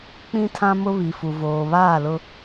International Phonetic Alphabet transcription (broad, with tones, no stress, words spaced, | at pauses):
k͡pĩ˦tʰã˦mʊ˦ βi˨fu˨ voː˨βaː˦˨lʊ˦